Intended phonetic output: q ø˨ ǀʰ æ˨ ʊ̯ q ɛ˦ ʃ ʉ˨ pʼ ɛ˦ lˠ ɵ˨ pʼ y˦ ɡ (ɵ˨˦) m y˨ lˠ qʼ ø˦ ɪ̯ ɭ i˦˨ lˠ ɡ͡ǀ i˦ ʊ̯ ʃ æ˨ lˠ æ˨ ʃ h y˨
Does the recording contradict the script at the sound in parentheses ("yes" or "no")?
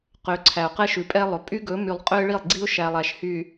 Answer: no